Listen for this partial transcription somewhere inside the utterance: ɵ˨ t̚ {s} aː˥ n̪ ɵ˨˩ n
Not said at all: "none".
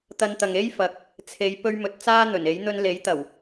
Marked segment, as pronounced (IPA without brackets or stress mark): t͡s